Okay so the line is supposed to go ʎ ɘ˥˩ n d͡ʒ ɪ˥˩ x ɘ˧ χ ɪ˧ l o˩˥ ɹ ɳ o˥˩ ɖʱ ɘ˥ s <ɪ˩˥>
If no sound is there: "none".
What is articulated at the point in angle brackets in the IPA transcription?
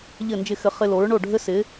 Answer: ɪ˩˥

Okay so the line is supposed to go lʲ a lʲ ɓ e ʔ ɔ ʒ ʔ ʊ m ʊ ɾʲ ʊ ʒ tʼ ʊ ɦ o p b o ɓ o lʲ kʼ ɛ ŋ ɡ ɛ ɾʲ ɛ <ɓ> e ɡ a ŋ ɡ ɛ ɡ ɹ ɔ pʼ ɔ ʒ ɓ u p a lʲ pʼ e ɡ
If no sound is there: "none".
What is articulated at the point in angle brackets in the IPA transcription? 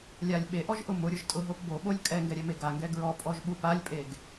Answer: m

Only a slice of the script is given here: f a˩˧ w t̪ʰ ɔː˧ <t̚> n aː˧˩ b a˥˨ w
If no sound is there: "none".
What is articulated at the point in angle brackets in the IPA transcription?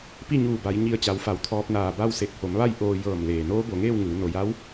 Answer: p̚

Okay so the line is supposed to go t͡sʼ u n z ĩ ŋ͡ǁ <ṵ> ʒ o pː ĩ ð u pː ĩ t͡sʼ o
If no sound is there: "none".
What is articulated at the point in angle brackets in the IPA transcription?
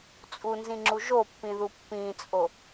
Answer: u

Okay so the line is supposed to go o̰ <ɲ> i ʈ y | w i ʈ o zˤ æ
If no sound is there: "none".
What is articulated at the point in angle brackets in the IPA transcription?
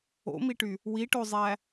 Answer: m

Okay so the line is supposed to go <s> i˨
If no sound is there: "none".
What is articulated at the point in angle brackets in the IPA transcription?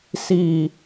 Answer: s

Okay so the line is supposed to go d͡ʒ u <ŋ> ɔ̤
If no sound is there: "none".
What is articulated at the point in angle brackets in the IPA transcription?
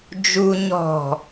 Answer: ɲ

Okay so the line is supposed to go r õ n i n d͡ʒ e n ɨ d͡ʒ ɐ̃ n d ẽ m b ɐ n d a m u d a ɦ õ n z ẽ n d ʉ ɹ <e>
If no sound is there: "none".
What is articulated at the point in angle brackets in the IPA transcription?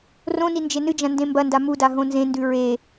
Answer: e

